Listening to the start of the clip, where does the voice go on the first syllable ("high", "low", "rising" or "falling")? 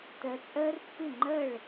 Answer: rising